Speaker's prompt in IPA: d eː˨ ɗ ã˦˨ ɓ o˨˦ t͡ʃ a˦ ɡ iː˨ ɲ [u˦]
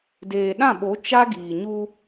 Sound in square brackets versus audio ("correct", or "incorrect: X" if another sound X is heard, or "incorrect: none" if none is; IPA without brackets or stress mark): correct